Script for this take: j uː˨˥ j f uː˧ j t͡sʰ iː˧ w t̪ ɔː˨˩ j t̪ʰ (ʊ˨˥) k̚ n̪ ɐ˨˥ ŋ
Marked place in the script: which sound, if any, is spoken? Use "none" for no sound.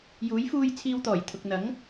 ʊ˨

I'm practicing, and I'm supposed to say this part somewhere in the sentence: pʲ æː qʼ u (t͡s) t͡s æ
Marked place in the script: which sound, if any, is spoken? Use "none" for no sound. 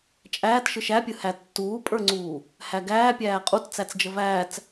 t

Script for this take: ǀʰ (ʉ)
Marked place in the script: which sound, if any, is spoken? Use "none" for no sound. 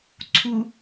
u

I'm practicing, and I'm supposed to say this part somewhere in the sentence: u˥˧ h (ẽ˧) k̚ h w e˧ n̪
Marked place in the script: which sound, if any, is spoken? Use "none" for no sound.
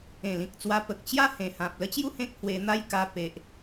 ẽ˦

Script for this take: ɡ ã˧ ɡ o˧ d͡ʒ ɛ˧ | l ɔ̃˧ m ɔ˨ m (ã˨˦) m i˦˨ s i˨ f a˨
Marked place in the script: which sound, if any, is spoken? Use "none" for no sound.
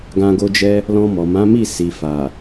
ã˨˦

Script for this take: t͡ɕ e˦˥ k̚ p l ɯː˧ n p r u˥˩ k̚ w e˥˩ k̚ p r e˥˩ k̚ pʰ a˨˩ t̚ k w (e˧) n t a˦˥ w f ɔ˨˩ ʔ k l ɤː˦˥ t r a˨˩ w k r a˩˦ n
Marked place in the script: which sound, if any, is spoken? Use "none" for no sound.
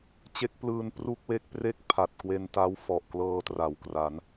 e˧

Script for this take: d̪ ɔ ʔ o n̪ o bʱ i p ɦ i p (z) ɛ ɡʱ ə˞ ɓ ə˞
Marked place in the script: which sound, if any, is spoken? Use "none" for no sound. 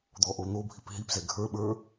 z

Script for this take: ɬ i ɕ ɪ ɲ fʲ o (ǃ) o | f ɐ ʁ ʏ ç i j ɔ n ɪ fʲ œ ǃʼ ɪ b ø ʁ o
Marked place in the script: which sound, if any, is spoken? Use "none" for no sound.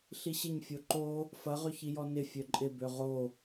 ǃ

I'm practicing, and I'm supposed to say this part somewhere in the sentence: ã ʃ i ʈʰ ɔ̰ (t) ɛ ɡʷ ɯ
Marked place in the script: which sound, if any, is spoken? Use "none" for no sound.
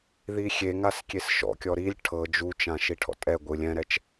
tʼ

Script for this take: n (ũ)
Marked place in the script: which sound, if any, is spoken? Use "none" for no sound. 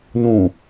ũ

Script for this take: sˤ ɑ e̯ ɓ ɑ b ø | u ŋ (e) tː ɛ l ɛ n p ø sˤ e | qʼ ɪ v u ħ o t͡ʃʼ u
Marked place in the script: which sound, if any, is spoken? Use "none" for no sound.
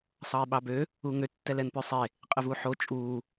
ø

